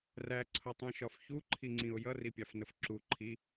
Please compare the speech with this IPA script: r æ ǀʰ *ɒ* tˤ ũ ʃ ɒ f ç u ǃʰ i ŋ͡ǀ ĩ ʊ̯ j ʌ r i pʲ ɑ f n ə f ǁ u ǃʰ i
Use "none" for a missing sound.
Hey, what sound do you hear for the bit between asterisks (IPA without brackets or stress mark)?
ʌ